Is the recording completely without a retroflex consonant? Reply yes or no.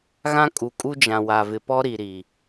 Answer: yes